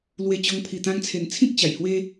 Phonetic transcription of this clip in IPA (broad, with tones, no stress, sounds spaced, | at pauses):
l w e˧ t͡ɕ ɔ˧ ŋ pʰ i˨˩ t̪ ã˧ ŋ t͡sʰ e˨˩ n t͡sʰ ĩ˦ k̚ t͡ɕ a˨˩ j h w e˦